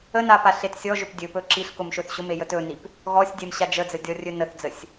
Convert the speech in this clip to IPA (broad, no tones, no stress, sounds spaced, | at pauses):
ə n a p a ɬ e t sʲ ɔ ʒ ɵ p dʲ ɵ p ɵ ǁ i ɬ k ʊ m ʃ ɵ θ ɕ ʊ m e j ə t ɵ n i p | ɣ ɔ sʲ dʲ ɛ m ɕ a d͡ʒ ə d͡z ə dʲ ɔ rʲ ɵ n ə θ d͡z ə sʲ